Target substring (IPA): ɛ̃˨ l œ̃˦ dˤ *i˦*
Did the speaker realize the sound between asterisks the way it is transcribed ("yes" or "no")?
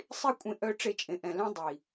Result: no